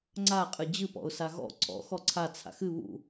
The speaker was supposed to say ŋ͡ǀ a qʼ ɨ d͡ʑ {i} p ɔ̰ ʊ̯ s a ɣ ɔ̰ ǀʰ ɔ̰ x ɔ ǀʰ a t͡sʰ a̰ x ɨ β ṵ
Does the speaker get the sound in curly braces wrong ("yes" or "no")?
yes